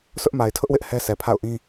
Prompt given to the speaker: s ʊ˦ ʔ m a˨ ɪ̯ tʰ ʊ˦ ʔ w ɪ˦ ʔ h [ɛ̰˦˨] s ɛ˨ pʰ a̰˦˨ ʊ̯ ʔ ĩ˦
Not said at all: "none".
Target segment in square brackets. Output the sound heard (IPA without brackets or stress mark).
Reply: ɛ˦